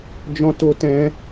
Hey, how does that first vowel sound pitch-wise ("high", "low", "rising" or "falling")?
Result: high